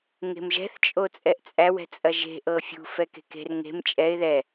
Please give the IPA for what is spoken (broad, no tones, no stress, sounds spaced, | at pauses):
ŋ e̤ m ʒ ɛ̤ θ t͡ʃʼ o t͡sʼ ɛ ʔ t͡sʼ æ w ɛ̤ t͡sʼ ɐ ʒ e̤ ʔ ɤ fʲ ṳ f ɛ k e̤ k e̤ r ŋ e̤ m t͡ʃʼ ɛ ɪ̯ ð ɛ